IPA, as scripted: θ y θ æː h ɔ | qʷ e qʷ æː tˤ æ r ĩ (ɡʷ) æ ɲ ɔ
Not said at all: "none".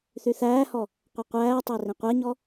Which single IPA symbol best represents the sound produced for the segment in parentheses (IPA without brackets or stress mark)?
qʷ